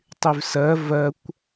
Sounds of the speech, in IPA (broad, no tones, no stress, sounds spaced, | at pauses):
tˤ y v s ɜ v ɜ kʷ